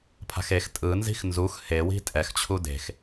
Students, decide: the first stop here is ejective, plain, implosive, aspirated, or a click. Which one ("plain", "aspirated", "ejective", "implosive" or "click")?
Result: aspirated